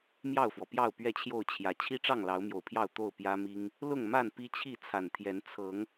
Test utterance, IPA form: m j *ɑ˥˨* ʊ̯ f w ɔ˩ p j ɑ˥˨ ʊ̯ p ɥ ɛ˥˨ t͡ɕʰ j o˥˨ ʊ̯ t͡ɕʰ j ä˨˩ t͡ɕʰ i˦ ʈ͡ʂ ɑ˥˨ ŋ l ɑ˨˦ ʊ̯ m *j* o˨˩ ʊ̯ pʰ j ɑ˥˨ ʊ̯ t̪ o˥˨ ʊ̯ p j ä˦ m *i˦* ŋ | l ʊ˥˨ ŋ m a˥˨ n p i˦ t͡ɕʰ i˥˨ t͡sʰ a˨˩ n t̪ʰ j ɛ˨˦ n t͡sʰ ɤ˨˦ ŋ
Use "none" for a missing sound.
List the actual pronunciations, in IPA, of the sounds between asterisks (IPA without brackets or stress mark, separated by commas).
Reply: ɑ˥˨, j, i˦